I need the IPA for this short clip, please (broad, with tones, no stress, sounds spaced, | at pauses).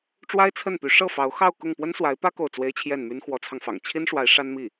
ʈ͡ʂ w a˥ ɪ̯ t͡sʰ ə˥˩ n p y˧˥ ʂ ɤ˥˩ f ɑ˧˥ ʊ̯ x ɑ˥˧ ʊ̯ k ʊ˥˩ ŋ p w ə˥ n s w a˧˥ ɪ̯ p ä˥ k o˥˩ ʊ̯ t͡s w e˥ ɪ̯ t͡ɕʰ j ɛ˥˩ n m y˥ n x w ɔ˧˥ t͡sʰ ɑ˧ ŋ f ɑ̰˨˩ ŋ t͡ɕʰ i˥ n ʂ w a˧˥ ɪ̯ ʂ a˥ n m i˥˩